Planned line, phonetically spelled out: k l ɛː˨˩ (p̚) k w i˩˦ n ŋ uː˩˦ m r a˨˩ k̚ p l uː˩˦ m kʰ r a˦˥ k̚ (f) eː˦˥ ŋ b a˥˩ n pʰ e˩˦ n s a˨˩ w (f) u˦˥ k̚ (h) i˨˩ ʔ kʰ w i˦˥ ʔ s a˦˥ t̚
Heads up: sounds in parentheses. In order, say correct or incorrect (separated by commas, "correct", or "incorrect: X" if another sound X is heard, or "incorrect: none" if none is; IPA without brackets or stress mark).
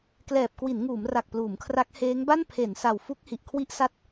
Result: correct, incorrect: h, correct, correct